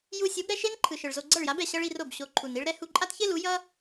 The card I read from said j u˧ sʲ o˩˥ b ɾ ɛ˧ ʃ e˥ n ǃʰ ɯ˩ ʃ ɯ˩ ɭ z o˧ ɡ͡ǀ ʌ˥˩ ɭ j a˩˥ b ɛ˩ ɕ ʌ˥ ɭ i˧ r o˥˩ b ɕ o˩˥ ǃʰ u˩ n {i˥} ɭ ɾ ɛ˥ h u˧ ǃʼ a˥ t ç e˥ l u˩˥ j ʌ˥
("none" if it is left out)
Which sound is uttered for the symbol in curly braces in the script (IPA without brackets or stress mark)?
i˥